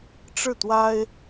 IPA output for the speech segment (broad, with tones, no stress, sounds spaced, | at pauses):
ʈ͡ʂ ɻ̩˥˩ t̪ w a˥ ɪ̯